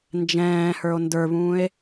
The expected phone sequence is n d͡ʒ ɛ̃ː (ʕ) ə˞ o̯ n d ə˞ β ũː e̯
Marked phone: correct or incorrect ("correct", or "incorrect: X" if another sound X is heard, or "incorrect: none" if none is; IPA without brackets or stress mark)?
incorrect: h